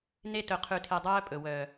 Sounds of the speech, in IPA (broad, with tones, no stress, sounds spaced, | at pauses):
n e˧ t ɵ˨ qʰ ʉ˨ tʰ e˨ dˤ œː˦ pʼ ɵ˨ w œː˨